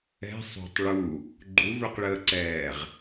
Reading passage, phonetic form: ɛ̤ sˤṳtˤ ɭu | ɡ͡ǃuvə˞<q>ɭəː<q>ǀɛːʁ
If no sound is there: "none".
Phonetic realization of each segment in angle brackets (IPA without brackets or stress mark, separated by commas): q, none